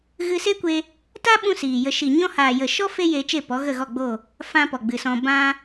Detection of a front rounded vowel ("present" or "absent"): absent